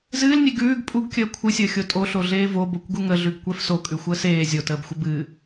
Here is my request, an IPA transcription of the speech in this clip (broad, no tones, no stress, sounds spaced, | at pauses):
z ɨː l nʲ e ɡ ʉː ɡ pʼ u ɡ kʲ əː kʷʰ ɨ sʲ əː xʲ o tʼ o ɬ o ɮ eː v o b o kʷ ɡ u ŋ ə ɮ ʉ ɡ kʷ ɛ f s o kʼ ʉ xʷ əː s eː zʲ o t əː b xʷ ə b ɨː